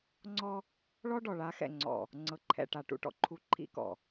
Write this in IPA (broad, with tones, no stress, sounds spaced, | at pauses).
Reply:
ŋ͡ǀ ɔ˦ | ɭ ɔ˦ ɖ ɔ˨ ɭ a˨˦ x ɛ̰˨ ŋ͡ǀ ɔ̰˨ | ŋ͡ǀ ɤ˨ ǃʰ ɛ̰˨ ʈ a˨ ʈ ṵ˦ ʈ ɔ̰˨ ǃʰ u˦ ǃʰ ḭ˦ k ɔ̰˨